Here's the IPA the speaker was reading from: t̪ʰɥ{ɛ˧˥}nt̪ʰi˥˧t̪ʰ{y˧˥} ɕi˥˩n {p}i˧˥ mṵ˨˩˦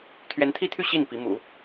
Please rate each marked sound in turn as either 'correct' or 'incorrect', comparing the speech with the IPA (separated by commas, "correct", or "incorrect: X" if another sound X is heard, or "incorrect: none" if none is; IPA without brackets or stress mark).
correct, incorrect: y˥˧, correct